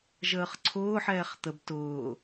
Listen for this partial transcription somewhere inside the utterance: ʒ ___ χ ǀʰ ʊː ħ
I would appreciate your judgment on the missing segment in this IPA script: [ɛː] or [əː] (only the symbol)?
əː